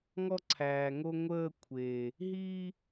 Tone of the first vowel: high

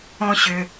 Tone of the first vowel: high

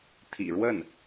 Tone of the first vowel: low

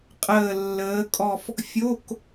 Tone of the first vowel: falling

